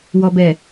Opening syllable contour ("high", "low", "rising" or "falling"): low